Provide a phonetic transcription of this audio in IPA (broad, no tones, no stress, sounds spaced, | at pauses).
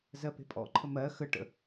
z ɜ p e̤ pʼ ɔ̰ ǃʰ ə m ɜ x ə ʈ ə̰